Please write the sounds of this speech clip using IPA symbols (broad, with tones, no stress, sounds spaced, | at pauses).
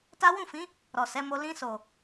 t a˦ w ũ˦˨ f ĩ˨˦ | ɾ ɔ˨ s ɛ˨˦ m o˧ l ĩ˧ s o˨